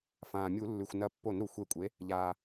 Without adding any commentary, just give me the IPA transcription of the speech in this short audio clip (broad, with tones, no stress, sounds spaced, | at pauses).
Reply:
f ãː˩ mʲ u˧˩˧ lː ʉ˩ xʷ n ɐ˧˩ pː o˧˩˧ n ɾ u˩ xʷ e˧˩ kʷʼ e˩˥ | ʎ aː˩